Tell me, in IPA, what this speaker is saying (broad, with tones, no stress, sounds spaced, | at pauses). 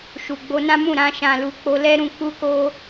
ʃ u˨ ɡ͡b o˧ n ã˦ m ũ˦˨ ɾ ã˧ ʃ ã˨ l u˨ k͡p o˧ l ɛ˦ ɾ ũ˧ k͡p u˦ k o˦